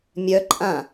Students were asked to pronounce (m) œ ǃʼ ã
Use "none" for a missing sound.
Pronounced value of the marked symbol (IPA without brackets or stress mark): mʲ